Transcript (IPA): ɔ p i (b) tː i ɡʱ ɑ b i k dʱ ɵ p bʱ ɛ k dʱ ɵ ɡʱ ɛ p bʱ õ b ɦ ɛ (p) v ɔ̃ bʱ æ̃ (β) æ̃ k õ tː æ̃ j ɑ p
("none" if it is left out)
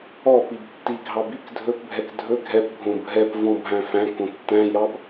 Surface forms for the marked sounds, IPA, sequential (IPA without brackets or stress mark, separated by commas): b, p, f